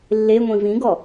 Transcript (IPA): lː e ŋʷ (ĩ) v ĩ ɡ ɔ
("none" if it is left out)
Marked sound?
ĩ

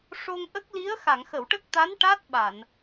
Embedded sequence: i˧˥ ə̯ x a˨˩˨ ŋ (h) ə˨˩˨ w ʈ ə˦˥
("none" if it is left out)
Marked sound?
x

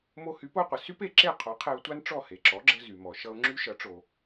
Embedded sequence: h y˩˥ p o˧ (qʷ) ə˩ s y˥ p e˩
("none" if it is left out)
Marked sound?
qʷ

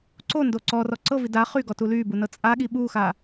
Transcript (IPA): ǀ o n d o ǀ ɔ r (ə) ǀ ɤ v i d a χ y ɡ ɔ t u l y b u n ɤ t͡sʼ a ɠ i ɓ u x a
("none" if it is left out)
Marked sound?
ɔ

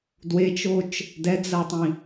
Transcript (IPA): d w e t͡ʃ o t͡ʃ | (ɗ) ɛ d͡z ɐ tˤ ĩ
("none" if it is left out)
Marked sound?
d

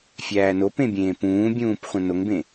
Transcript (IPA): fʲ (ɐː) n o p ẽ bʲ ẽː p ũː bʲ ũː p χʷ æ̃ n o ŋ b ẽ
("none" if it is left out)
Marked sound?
æː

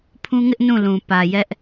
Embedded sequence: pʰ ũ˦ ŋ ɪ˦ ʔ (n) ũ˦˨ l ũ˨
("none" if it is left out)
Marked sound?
n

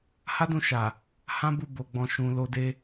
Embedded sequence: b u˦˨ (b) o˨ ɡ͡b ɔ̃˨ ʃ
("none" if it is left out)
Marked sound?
b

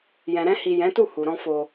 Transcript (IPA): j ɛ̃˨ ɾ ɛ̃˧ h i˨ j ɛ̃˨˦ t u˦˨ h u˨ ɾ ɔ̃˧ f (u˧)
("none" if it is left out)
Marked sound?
o˧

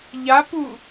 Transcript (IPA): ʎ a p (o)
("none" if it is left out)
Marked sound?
u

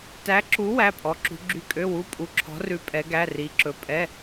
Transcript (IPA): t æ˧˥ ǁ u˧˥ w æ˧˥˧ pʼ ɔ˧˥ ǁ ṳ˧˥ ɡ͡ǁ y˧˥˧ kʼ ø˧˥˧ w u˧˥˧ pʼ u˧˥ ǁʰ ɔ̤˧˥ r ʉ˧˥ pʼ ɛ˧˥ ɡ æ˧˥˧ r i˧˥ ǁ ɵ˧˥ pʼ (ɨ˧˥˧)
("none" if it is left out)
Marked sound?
ɛ˧˥˧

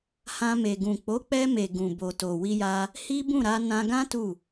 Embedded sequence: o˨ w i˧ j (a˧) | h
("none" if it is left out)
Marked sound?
a˧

